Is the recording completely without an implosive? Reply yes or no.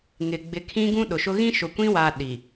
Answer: no